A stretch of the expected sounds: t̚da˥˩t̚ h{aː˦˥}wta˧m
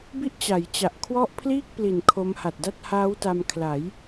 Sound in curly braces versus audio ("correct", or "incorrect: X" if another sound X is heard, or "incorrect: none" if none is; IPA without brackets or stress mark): correct